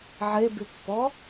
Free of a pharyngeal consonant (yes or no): no